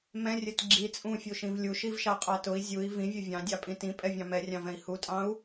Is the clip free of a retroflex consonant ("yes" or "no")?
yes